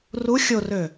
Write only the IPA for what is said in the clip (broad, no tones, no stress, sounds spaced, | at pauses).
r u xʲ o r ø